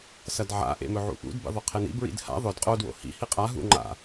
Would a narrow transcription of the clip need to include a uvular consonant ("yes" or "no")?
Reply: yes